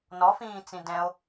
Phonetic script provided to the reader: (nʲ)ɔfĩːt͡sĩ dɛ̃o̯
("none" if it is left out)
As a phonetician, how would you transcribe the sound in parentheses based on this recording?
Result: n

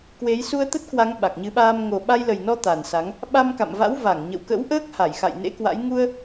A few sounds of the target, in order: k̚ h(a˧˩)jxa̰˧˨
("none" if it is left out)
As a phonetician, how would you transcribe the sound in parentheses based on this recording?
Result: a˧˩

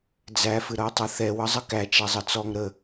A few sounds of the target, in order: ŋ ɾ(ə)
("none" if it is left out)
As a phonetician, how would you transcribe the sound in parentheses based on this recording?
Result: ə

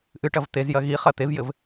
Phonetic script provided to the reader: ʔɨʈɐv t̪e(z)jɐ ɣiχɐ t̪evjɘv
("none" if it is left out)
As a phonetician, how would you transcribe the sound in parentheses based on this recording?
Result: z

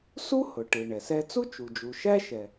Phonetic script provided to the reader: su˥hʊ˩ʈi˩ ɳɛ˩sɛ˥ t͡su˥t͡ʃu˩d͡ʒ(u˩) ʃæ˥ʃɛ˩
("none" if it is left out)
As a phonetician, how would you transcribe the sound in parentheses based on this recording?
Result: u˩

